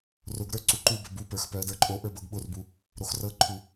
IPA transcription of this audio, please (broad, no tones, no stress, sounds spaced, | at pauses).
r ʊ ɡ ɾ ə˞ ǀ u ǃ u b ə b u p ə˞ x p œ ə̯ d ə˞ ǃʼ o ʔ ə˞ b ɤ ɡ ɓ ʊ r b u | ɾ o x r ɤ ǃʰ u